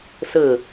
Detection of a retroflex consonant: absent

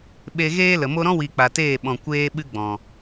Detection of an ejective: absent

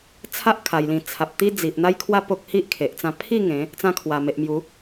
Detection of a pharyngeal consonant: absent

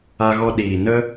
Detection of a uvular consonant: absent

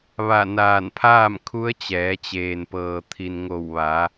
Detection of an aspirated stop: present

